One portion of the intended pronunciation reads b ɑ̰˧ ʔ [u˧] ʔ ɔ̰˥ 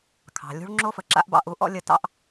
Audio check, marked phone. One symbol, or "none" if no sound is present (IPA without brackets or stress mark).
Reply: u˧